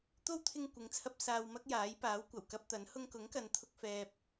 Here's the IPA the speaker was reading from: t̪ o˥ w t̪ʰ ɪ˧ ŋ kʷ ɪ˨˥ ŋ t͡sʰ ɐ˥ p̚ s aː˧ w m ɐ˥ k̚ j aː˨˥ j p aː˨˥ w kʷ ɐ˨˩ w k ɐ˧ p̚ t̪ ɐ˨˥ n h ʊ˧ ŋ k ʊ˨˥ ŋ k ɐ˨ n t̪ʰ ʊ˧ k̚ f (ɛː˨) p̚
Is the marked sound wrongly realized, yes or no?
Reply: no